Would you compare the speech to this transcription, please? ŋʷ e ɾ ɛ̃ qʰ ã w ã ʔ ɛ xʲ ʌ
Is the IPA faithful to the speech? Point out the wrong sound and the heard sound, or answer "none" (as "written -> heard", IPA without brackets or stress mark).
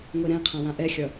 none